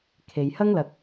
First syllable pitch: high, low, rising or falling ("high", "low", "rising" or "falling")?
low